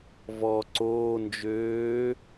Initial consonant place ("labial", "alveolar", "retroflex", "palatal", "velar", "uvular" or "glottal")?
labial